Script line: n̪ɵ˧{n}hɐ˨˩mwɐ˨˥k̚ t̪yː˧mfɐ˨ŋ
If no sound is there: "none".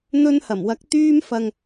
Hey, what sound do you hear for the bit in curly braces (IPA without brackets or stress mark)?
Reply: n